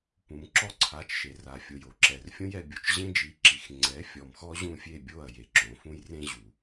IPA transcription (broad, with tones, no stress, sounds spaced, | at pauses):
p ũ˨ m ǁ ɔ˦ ǀʰ a˨˦ t͡ʃ ʃ e˨ r a˨ fʲ o˨ j o˨ ǁ ɛ˨ r fʲ õ˦ j ɛ˧ bʲ o˨ t͡ʃ ʑ ẽ˦ d͡ʒ i˨˦ ǁ i˨ x ŋ͡ǀ ɛ˨˦ fʲ ɔ˨ m x ɔ˦ ʑ ũ˦˨ fʲ e˦˨ bʲ o˦˨ ɐ̯ j e˨ ǁ õ˨˦ f ũ˦ j r ẽ˦ ʑ u˨